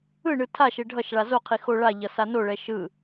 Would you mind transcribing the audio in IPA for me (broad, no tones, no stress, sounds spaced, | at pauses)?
ɯ ɳ ɯ tʰ a ʃ e ɖʱ ʌ ʃ ɭ a z o qʰ i x o ɭ a ʎ ʌ s a n o ɭ ɛ ʃ ɯ